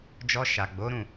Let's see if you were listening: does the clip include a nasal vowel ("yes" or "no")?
yes